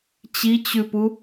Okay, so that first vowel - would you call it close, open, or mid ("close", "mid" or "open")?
close